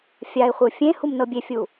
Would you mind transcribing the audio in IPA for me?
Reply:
fʲ a ɪ̯ χʷ ɯ fʲ ẽ h u m n ɤ bʲ e fʲ u

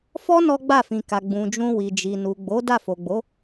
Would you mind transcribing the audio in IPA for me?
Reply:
f ɔ˦ n ɔ˦ ɡ͡b a˦˨ f ĩ˨ k a˨ ɡ͡b ũ˨ d͡ʒ ũ˧ w i˨ d͡ʒ i˨ n u˨ ɡ͡b o˨˦ d a˦˨ f o˨ ɡ͡b o˨˦

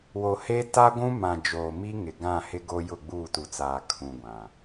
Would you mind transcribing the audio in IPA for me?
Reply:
w o˨ h e˦ t a˦ ɡʷ ũ˦ m ã˨ d͡ʒ oː˨ m i˦ ŋ ɪ˨ ɡ ã˦˨ h ɪ˦ ɡ o˦ j ʊ˦˨ ɡ͡b uː˦˨ t u˨ t͡s aː˨ kʰ ũ˨ ɡʷ ã˨

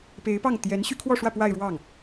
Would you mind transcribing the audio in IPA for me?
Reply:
p e˧˥ ɪ̯ p ɑ˥˩ ŋ t̪ j ɛ˧˥ n ɕ y˥ kʰ w ɔ˥˧ ʂ w ä˥˧ p w a˥˧ ɪ̯ ɻ w ɑ˥˩ ŋ

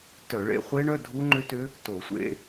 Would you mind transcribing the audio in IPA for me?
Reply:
t œ˧˩˧ ɭ ḛ˧˥˧ χʷ e˦˥ ɳ œ˧˥˧ dʱ u˦˥ ŋ͡ǃ ʏ˦˥ t ʏ˦˥ | t o˧˩˧ sʷ ḛ˧˥˧

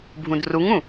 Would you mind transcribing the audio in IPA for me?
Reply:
bʱ ũ d r u ŋ ũ

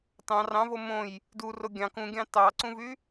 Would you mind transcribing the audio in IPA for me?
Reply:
t ɑ̃ r ɑ̃ v o m õ j | d u r o ɡʲ ɑ̃ k ũ ɡʲ ɑ̃ t ɑ ǀ ũ v y

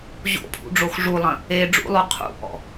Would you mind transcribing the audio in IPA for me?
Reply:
ʑ o̰ pʰ ṵ ɖ͡ʐ o x ʐ u lˠ ɐ̃ | e ɖ͡ʐ ṵ lˠ o qʰ ṵ ʔ ɔ̰

